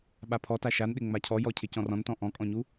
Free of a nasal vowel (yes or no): no